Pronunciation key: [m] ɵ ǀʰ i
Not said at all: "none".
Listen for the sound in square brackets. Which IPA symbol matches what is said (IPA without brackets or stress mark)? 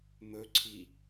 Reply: m